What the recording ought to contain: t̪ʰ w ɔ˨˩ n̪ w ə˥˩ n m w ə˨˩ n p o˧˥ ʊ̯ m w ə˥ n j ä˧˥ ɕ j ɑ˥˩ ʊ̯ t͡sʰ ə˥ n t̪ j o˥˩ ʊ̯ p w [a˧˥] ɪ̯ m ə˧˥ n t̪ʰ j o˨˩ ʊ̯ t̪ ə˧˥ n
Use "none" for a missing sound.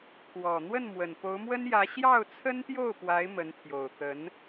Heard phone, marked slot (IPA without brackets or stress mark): a˧˥